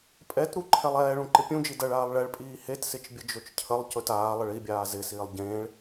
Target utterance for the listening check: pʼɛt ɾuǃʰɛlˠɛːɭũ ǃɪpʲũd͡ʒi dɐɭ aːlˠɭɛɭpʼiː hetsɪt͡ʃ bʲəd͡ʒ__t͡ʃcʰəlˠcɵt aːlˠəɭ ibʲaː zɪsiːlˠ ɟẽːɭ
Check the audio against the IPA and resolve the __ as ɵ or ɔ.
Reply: ɵ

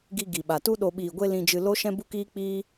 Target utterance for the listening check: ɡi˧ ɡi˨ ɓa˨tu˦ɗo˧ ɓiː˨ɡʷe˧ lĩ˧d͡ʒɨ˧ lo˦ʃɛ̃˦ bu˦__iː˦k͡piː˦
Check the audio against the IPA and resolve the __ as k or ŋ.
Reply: k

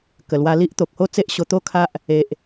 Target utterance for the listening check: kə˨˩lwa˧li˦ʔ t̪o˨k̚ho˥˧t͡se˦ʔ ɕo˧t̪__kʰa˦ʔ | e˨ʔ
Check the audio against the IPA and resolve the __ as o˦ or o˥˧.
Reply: o˥˧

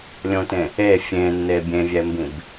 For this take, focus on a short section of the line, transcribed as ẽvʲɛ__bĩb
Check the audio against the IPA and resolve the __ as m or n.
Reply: m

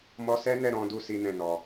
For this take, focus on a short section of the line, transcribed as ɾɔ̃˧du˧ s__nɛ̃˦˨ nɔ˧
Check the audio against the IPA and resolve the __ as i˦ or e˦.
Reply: i˦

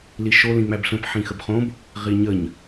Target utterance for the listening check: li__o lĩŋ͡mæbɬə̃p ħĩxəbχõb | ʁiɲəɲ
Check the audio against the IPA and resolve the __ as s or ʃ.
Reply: ʃ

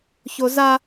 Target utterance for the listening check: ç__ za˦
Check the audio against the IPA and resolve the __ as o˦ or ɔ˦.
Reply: o˦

